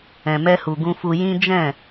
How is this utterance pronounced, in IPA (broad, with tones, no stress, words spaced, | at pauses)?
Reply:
ɛ̃˨mɛ˧hu˨ ɡũ˧fu˧ jĩ˦ d͡ʒɛ̃˦˨